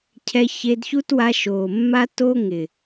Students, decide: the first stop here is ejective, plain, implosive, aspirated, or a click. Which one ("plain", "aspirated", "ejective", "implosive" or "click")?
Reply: aspirated